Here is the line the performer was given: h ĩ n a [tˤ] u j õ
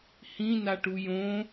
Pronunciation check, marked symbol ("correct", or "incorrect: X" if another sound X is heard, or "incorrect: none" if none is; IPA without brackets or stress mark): incorrect: ʈ